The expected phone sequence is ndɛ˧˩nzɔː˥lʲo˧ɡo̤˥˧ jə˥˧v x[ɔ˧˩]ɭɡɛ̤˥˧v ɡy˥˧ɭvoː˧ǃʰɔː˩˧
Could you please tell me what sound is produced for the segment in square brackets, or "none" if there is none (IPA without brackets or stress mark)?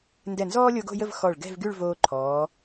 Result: ɔ˧˩